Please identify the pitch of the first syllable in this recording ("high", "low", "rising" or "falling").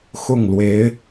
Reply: falling